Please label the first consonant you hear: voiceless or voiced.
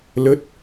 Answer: voiced